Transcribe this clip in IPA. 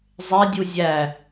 zˤ e dʲ u zʲ æ

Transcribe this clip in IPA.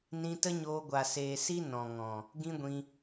n ĩ˧ t ə˦ ɲ oː˧ ɡʷ a˨ s eː˨ s i˦ n ɔ̃˨ ŋ ɔ̃˨ | ɡ ĩ˦ ɡʷ ĩ˧

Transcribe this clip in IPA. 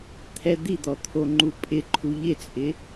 t̪ʰ ɛ d̪ i d̪ ɔ t̪ʰ o ŋ͡ǃ u pʼ ɪ ǃʰ u ʎ ɪ t͡sʼ ɪ

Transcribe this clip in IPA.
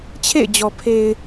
t͡ɕʰ ḛ˦˨ ɪ̯ d͡ʑ ɔ˨ pʰ e˨ ɪ̯

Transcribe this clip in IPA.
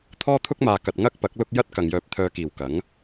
t̪ʰ ɔː˥ t̪ʰ ʊ˥ k̚ m aː˨ k ɐ˨ t̚ ŋ ɐ˥ k̚ p ɐ˨˥ k̚ l ʊ˥ k̚ j ɐ˥ t̚ k ɐ˨ ŋ j œː˧ p̚ t̪ʰ œː˧ k iː˨˩ w k ɐ˨˥ ŋ

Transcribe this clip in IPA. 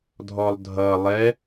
dʱ ɔ lˠ dʱ ʌ lˠ ɛ

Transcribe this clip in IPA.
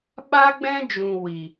ɓ a˦ ɡ͡b ɛ̃˦ d͡ʒ ũ˨ w i˨

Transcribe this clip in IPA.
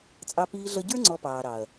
t͡sʼ ɑ˧ p iː˧ ɮ ʌ˧ ɟ ə˞˦ ŋ͡ǀ ɔ˧ p ɑː˨ ɾ ɑ˨ ɐ̯

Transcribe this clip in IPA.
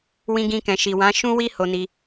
w ĩ˧ ɡ ĩ˧ k ɛ̃˨ ʃ i˨ w ã˨˦ ʃ ũ˦ w i˦ h o˧ n i˧

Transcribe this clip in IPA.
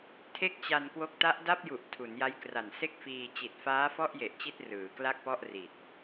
tʰ e˥˩ k̚ t͡ɕ a˧ n k w o˦˥ k̚ t a˦˥ ʔ d a˥˩ p̚ j u˨˩ ʔ tʰ u˩˦ n j a˦˥ j k r a˨˩ n s e˥˩ k̚ f iː˧ t͡ɕ i˨˩ t̚ f aː˦˥ f ɔ˥˩ ʔ j e˨˩ ʔ t͡ɕ i˥˩ t̚ r ɯː˩˦ k l a˥˩ k̚ p ɔ˥˩ ʔ r i˨˩ t̚

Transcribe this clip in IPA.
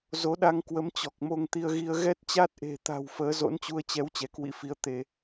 z o˨˦ ɗ a˧ ŋ k w ə˨˦ m t͡ɕ ɔ˨˩ k̚ m o˧ ŋ t̪ i˧ ə̯ ɣ i˧ ə̯ ɣ ɛ˦˥ t̚ t͡ɕ a˦˥ t̚ ʔ e̤˨˩ t̪ a̤˨˩ w f əː˨˦ z o̰˧˥ n t͡ɕ u˧ ə̯ t͡ɕ ɛ˨˦ w t͡ɕ ɛ˨˦ k w ḭ˧˥ f i˧ ə̯ t̪ e˧˩˨

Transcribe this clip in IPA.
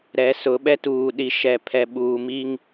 ɾ ɛ˨˦ s ʊ˨˦ ɓ ɛ˦ t uː˨ ɗ i˨ ʃ ɛ˨ pʰ ɛ˨ ɓ uː˨ m i˦ ŋ

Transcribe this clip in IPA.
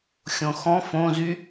xʲ õ x ɔ̃ f õ z y

